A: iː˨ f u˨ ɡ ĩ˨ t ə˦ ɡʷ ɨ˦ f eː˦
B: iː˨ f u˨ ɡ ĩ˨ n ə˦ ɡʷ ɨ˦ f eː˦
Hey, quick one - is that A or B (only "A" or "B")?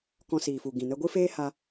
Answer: B